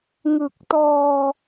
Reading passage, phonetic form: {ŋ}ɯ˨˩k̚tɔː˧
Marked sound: correct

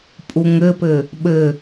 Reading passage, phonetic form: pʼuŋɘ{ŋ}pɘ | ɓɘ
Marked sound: incorrect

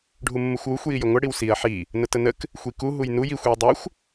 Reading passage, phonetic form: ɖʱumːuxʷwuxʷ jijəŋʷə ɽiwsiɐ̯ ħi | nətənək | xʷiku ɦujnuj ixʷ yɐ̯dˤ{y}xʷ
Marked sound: correct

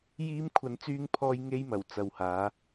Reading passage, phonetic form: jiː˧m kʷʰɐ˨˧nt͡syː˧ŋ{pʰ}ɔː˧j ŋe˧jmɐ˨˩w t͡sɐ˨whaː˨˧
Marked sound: correct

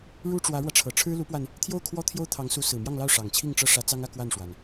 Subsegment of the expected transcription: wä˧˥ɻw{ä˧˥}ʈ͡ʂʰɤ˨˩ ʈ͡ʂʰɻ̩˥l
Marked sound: incorrect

